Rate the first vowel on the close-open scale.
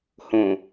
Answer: mid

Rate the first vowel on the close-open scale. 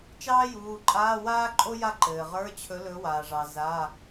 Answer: open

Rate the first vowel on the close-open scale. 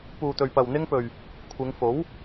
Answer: close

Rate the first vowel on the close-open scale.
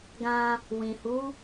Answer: open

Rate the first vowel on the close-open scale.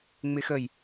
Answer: close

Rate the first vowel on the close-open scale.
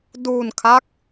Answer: close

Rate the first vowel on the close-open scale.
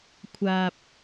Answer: open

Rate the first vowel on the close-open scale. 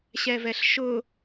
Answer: mid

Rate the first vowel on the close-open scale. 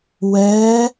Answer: mid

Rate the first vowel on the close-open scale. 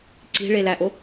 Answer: close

